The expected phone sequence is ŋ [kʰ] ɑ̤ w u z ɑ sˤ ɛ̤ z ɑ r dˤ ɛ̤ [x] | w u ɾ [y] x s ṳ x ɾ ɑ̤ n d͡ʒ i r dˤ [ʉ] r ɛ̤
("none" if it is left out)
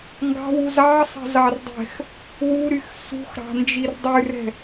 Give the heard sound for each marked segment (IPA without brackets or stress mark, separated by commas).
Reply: ɡ, x, y, ʉ